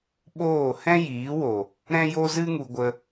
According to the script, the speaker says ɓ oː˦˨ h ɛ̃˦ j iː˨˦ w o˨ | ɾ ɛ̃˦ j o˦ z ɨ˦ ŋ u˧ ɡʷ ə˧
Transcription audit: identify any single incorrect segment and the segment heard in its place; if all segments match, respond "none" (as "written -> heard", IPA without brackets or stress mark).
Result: none